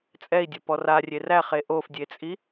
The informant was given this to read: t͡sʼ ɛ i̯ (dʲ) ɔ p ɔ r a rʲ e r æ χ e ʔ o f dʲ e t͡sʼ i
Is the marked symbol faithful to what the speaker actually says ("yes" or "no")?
yes